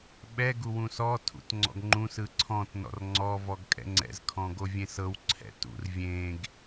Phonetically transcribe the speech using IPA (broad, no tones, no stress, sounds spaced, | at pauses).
ɓ ɛ ɡ u w ũ s ɔ tʰ ṵ t ŋ͡ǀ ɔ̰ ɡ ŋ͡ǃ ũ s ɯ ǀʰ ɔ̃ t n ɔ̰ r ŋ͡ǀ ɔ v ɔ ɡ kʼ ɛ̰ ŋ͡ǀ ɛ̰ z kʰ ɔ̃ ɡ o vʲ ẽ s ɤ w ǀʰ ɛ̰ t ṵ r vʲ ẽ ɡ